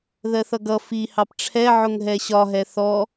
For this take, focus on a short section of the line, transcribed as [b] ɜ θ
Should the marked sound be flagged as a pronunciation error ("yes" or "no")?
yes